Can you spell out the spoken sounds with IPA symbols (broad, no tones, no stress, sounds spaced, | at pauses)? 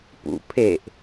p ṵ pʰ e ʔ